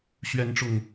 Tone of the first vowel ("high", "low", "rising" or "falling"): high